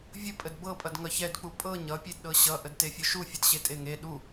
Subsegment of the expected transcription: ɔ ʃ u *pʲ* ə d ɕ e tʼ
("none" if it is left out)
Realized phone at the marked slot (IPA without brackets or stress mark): fʲ